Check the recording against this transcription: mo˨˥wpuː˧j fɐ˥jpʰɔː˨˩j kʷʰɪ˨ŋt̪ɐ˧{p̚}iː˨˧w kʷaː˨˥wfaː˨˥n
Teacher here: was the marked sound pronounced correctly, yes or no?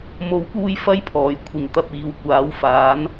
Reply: yes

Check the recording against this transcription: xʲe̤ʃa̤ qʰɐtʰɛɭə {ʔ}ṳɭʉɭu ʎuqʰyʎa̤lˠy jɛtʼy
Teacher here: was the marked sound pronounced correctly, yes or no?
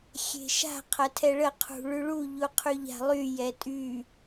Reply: no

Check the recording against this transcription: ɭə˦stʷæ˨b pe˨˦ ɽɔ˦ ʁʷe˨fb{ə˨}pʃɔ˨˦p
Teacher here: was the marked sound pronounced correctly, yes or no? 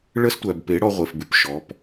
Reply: no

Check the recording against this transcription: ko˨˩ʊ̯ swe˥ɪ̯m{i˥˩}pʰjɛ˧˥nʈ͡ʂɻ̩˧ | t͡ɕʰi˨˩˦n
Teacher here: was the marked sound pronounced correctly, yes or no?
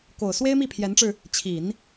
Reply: yes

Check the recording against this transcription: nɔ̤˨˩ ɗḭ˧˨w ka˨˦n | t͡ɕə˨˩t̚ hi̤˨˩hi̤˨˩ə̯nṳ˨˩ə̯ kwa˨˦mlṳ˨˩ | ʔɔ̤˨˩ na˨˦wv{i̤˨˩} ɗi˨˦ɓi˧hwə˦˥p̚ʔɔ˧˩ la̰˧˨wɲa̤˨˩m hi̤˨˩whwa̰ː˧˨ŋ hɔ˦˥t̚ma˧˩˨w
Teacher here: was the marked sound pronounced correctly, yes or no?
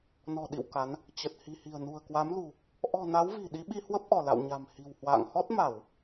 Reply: yes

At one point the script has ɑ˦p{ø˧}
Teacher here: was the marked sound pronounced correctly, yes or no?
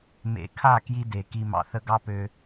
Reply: yes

